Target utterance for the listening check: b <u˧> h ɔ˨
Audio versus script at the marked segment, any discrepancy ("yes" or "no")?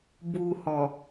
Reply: no